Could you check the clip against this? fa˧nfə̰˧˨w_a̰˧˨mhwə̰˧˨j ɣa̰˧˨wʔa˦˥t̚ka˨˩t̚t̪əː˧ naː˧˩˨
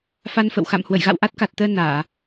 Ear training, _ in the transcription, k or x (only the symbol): x